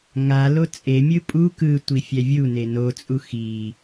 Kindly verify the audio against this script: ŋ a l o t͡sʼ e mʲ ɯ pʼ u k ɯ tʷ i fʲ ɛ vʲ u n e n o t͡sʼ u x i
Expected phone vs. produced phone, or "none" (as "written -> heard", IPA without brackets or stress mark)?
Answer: none